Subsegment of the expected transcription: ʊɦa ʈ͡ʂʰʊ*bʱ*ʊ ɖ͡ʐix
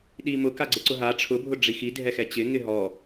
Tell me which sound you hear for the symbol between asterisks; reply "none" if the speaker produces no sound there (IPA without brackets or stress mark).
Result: bʱ